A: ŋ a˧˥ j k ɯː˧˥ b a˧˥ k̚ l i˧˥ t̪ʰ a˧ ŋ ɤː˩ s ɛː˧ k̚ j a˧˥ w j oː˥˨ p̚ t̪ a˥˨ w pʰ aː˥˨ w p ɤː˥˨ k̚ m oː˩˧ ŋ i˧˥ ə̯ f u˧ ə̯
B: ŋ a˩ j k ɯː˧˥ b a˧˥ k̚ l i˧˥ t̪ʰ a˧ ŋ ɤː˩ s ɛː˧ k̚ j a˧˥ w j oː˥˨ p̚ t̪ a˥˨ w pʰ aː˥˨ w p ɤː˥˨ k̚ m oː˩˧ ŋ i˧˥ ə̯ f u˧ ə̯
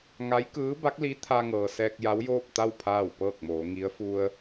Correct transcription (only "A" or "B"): A